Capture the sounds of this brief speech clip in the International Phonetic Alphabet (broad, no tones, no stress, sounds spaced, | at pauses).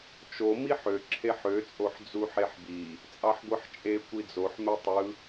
t͡ʃ o m i ħ ø ǁʰ e ħ ø t͡sʼ o ħ d͡z u ħ e ħ b i | t͡sʼ ɑ ħ ɡʷ ɯ ħ t͡ʃʼ e kʷ i d͡z o ħ m e tˤ ɯ